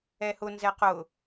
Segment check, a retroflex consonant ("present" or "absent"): absent